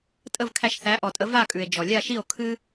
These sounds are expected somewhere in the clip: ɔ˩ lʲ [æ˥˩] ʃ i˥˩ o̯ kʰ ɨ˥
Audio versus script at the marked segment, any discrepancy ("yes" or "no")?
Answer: yes